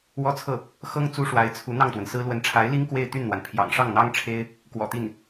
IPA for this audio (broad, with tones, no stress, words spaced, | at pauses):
wɔ˥t͡sʰɤ˥˩ | xɤ˥ŋ t͡su˥ʂwa˧˥ɪ̯t͡sʰu˧˥ n̪ɑ˥˩ŋt̪wə˩nsɹ̩˥ lwə˧˥nʈ͡ʂʰa˧˥ɪ̯li˥ŋ kwe˥˧ɪ̯t̪y˥˩nn̪wa˩npʰjɑ̰˨˩ŋ ʂɑ˥˩ŋn̪ɑ˥ŋ ʈ͡ʂʰe˥ɪ̯ | kwɔ̰˨˩t̪i˥˩n